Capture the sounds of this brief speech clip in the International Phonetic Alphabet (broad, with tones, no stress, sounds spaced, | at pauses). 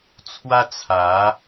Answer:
t͡sʰ w a˦ t͡sʰ a˨˦